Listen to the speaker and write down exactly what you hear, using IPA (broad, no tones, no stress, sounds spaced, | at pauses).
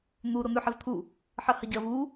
n̪ u ɾ o n̪ ʉ ħ e v t̪ʰ u | ħ ɐ h ɐ ɟ ɐ v u